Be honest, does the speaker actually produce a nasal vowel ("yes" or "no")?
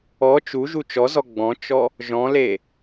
yes